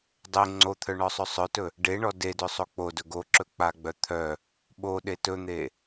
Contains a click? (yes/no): yes